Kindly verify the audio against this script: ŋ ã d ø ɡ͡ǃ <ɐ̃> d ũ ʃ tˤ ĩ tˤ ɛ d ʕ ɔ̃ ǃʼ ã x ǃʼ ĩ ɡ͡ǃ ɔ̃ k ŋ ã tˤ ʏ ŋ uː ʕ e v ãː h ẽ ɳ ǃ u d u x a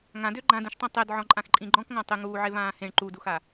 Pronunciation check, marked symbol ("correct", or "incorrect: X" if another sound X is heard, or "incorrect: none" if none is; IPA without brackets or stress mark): incorrect: ã